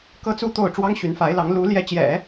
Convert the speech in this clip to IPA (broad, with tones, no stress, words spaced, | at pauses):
kɤ˥t͡su˥t̪o˥˩ʊ̯ ʈ͡ʂwɑ˥ŋɕy˧˥nfa˧˥ɪ̯lɑ˧˥ŋ lu˧˥ ljɛ˧˥t͡ɕjɛ̰˨˩˦